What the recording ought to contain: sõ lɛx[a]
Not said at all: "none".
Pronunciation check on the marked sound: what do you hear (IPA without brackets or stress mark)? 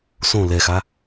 a